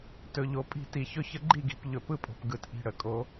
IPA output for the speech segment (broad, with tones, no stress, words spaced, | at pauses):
tɵ˨ʎo˨ pʼi̤˦˨ti˨çɵ˦çə˦ ɡ͡ǃi˦˨ɡi̤˨p ʎɵ˨pɯ˦pʼo̤˨p ɡɯ˨tʔi̤˨ ɽə˨kʼo˨˦